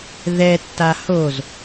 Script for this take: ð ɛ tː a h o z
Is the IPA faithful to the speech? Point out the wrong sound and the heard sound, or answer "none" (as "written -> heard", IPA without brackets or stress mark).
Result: none